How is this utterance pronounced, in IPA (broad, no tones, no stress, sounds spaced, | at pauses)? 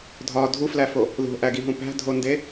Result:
dʱ ɒ dʱ u f l æ f o | ð o̤ ʔ æ ɡ i ɦ ũ p æ̤ dʱ o n d e